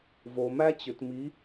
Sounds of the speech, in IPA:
v o˨ m æ˦ t͡ɕ ʏ˨ t m i˨˦

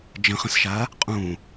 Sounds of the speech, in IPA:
d͡ʒ ə̃ χ ə̃ s ʃ a | qʼ ũ

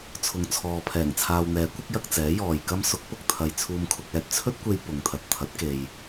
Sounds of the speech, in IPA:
t͡sʰ ʊ˨ ŋ t͡sʰ ɔː˨ pʰ ɛː˨˩ ŋ t͡sʰ aː˨ w n̪ ɛː˨˥ kʷ ɐ˨˥ k̚ j ɐ˧ k̚ t͡s ɛː˨˥ j ɔː˨ j k ɐ˥ m s ʊ˨˥ k̚ p ʊ˨ k̚ t̪ʰ ɐ˨ j t͡sʰ uː˧ m kʰ ʊ˧ k̚ ɛː˧ t̚ t͡sʰ ɵ˥ t̚ kʷ e˧ j p ʊ˨˧ ŋ t̪ʰ ɐ˨ t̚ t̪ʰ ɐ˨˥ t̚ k e˧ j

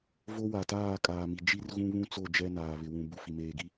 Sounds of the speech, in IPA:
v o˦ w a˨ t aː˦˨ kʼ aː˨ m i˨ d͡ʒ i˦ r ɣ ũ˦ β ũ˦ t͡s o˦˨ d͡ʒ ɛ˦ n aː˨ β ɪ˨ w ũ˨ b u˨ f i˨ m eː˨ ɡ i˦

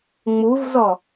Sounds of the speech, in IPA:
ŋ͡m u v z ɔ

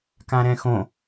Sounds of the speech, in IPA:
k ã ɾ ɛ̃ x õ

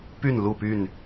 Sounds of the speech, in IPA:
p y˥˨ n l u˥˨ p y˥˨ n

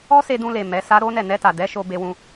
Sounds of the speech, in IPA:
ɔ˦ s e˧ d ũ˧ l e˨ m ɛ˨˦ s a˦ ɾ o˦ n ɛ˦˨ n ɛ˧ t a˨ d ɛ˨˦ ʃ o˧ b e˧ w ũ˧

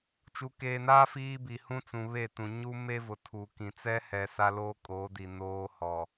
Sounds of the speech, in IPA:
t͡ʃ u˨ k eː˨ n aː˦ f iː˦ b i˨ h ũ˦ t͡s ũ˨ β e˦˨ t ũ˨ ɲ u˦ m e˦ v ʊ˨ tʰ u˨ k ĩ˨ t͡s ɛ˦ h ɛ˨ s a˦ l oː˦ kʼ oː˨˦ d i˨ n oː˦ h ɔ˨

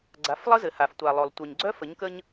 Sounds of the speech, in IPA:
ɡ͡ǀ a˨˦ f lˠ ə˦ z ɘ˨ h a˨ f tʷ a˨ lˠ o˨ lˠ tʷ œ˨ ɲ ɡ͡ǀ œ˦ f ə˨˦ ɲ k ə˦ ɲ

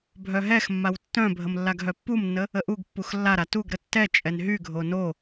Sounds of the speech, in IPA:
bʱ œ ɦ ɛ x mː a w tː œ̃ bʱ ə m lː a ɡ ɦ œ pː u m nː ə | ə ʔ u ɡ pː u x lː a ɾ a t u ɡ ɾ ə tː ɛ t͡ʃʼ ɛ n ɦ y ɡʱ o n o

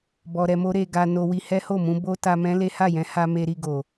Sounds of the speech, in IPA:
b ɔ˧ ɾ ɛ˧ m o˦ ɾ e˧ ɡ a˧ n o˧ w i˧ h ɛ˦ h o˦˨ m ũ˧ b o˦ t a˧ m ɛ̃˦ l e˦ h a˦˨ j ɛ̃˨˦ h a˧ m e˧ ɾ i˧ ɡ o˨

